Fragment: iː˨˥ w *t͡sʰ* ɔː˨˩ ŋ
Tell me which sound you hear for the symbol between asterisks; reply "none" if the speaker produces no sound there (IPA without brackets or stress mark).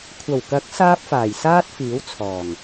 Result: t͡sʰ